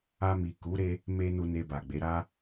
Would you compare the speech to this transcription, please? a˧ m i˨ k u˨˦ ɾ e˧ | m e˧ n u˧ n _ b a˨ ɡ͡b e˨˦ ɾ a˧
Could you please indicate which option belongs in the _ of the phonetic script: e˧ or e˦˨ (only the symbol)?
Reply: e˧